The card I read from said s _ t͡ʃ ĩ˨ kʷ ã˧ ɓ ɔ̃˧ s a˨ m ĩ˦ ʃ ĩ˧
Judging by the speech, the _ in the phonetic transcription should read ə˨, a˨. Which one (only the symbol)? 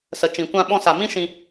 ə˨